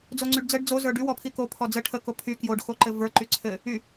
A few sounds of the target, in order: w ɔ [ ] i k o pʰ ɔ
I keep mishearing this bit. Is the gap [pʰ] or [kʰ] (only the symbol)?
pʰ